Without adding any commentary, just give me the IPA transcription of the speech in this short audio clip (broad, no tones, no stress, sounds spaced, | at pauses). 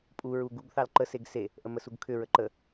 pʼ u ɹ u ɡ u ɡ θ ɑ l ǃ ə s e ɡ s e | ʔ ə m ə s u ɡ kʰ ʏ ɹ ə ǃ ə